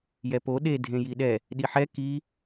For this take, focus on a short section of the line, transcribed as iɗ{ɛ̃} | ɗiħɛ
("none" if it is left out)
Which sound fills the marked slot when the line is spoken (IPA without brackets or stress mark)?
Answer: ɛ